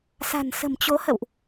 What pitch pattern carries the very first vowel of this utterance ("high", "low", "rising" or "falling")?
low